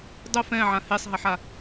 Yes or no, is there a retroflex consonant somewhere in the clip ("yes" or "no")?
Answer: no